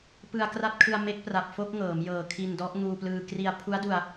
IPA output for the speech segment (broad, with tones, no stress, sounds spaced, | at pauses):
p ɯ˧ a̯ k r a˥˩ t̚ kʰ ɯ˧ a̯ m e˦˥ k̚ p r a˨˩ p̚ f o˥˩ k̚ ŋ ɤː˩˦ m j ɤː˨˩ kʰ i˧ n d ɔ˦˥ ʔ ŋ uː˧ p l ɯː˧ k r i˧ a̯ pʰ u˦˥ a̯ d u˧ a̯